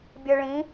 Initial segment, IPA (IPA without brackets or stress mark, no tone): bʲ